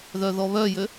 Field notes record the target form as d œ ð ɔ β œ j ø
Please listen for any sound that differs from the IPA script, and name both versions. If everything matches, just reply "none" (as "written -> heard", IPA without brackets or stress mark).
d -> ð